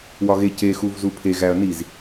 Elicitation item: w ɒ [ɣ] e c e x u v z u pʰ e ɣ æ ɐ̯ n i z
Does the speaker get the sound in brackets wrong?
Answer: no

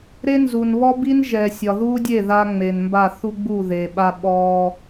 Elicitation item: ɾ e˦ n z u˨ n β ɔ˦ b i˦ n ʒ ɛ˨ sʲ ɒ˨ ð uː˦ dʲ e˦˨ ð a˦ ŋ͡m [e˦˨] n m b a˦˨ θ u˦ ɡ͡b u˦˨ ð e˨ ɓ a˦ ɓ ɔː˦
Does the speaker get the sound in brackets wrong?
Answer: yes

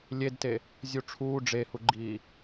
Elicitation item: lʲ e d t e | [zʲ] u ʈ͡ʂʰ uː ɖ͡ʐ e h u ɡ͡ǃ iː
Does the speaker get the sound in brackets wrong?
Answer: no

